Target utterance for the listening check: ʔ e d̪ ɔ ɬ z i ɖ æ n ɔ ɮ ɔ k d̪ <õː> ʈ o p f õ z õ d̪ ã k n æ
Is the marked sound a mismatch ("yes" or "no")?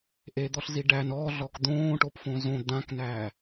no